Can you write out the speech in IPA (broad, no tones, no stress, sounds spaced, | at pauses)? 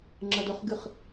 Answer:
ŋ͡ǁ ɐ d ɵ χ ɡ ɨ χ